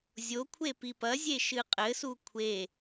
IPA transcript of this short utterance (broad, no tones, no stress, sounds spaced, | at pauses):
zʲ o kʷʰ e p i p ɐ zʲ e ʃ ɨ qʼ ɘ s u kʷʰ e